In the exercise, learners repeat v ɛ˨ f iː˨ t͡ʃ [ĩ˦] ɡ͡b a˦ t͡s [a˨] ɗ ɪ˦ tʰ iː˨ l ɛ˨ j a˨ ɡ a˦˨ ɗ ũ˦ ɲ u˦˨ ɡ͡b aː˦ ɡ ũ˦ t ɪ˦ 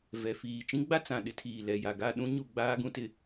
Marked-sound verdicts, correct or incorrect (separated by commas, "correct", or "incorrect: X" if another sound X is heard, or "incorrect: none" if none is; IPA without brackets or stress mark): correct, incorrect: ã˨